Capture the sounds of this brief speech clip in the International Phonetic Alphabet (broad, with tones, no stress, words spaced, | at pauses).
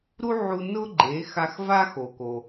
ɾu˥ʕu˧ nʊ˥ɡ͡ǃe˩˥ xa˧xva˥xo˩ ko˩